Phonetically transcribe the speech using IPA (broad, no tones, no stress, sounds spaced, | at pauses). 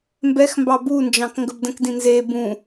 m b ɛ x m b ɑ b u n d͡ʒ ɑ̃ k ŋ ɡ ə b d ə̃ k d ĩ n z e b ũ